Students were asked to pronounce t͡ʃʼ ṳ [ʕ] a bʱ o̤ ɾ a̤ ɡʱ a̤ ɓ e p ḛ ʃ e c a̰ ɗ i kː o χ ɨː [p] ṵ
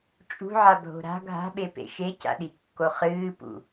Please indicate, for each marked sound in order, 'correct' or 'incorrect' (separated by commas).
correct, correct